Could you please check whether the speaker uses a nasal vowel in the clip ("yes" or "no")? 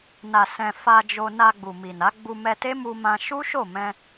yes